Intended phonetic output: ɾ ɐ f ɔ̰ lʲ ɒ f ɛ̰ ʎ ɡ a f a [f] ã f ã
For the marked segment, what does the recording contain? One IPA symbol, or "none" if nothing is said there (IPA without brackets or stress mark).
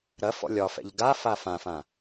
f